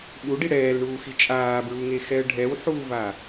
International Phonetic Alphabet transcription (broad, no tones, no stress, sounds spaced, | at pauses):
ɓ u ɖ i ɽ ɛː l ɳ uː x i t͡ʃʼ aː b ɹ u ŋ e x ɛ ə̯ ɖʱ ɛ w ħ uː v a